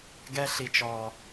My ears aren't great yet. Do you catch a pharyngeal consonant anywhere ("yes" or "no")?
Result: no